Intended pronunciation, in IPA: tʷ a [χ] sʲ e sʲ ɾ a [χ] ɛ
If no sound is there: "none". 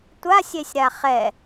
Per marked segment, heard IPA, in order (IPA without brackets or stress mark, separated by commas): none, χ